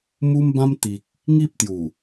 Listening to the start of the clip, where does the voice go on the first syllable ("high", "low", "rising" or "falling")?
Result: high